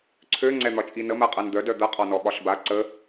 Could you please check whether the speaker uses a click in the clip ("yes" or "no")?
yes